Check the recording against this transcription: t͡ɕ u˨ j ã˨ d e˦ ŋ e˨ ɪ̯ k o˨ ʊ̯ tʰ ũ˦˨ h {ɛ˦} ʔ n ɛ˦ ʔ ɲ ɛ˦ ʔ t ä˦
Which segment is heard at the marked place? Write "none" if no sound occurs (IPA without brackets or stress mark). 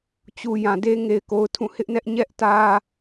ɪ˦